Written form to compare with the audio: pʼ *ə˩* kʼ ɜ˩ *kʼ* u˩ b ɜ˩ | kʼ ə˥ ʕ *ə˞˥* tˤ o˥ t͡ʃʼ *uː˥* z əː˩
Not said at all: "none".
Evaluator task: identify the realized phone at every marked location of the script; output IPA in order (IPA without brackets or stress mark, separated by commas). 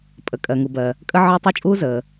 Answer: ə˩, ŋ, ə˞˥, uː˥